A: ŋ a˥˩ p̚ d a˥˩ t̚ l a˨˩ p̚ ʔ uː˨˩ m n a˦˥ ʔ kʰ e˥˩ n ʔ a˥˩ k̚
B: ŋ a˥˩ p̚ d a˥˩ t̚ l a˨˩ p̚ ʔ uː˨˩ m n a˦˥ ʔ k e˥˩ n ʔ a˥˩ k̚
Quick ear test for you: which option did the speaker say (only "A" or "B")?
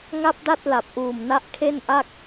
A